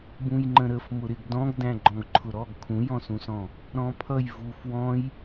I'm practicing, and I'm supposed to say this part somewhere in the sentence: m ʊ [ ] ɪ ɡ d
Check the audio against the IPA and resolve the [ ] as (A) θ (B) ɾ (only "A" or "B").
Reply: B